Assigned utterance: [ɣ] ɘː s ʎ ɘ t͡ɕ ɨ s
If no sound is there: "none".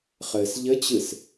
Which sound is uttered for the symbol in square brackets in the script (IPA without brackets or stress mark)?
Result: χ